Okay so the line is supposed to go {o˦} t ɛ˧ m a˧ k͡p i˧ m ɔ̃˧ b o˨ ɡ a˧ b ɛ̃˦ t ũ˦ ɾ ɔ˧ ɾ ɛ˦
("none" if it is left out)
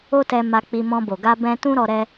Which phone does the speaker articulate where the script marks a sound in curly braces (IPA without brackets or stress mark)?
o˦